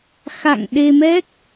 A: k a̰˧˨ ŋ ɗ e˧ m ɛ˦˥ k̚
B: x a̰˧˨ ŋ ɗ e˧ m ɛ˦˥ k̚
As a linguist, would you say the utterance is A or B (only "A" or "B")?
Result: B